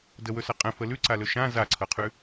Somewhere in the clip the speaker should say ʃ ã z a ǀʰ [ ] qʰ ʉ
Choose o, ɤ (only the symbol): ɤ